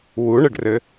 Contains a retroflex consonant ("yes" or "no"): yes